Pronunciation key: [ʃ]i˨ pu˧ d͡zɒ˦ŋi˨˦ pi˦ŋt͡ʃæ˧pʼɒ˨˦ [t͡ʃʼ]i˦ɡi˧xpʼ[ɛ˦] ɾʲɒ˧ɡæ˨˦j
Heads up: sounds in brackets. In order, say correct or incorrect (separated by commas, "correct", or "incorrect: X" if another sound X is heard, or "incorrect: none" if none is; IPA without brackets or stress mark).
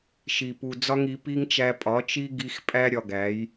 correct, incorrect: t͡ʃ, incorrect: æ˦